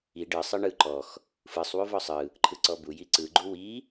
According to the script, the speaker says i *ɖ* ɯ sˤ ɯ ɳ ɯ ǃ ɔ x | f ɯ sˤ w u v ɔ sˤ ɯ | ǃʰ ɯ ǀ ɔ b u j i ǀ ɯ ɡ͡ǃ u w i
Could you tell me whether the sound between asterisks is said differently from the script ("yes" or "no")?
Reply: no